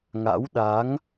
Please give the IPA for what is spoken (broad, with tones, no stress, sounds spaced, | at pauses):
ŋ a̰˧˥ w ɗ a˨˦ ŋ